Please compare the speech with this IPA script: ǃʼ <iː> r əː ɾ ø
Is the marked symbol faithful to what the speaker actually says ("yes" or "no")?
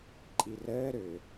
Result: no